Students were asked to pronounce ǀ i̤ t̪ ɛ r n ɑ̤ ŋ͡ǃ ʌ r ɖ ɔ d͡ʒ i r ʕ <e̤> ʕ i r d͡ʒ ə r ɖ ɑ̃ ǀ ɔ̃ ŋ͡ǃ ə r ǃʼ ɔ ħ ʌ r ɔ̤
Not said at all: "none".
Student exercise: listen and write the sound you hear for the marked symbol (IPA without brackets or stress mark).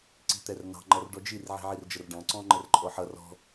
i̤